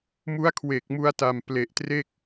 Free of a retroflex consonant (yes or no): yes